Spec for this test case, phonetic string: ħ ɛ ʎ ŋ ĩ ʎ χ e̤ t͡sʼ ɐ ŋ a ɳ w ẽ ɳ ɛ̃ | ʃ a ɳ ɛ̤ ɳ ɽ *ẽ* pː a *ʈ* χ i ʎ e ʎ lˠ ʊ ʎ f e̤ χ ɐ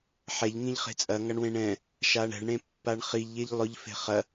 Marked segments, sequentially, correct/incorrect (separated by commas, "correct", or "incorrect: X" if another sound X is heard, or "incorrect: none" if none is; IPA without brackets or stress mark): correct, incorrect: ɳ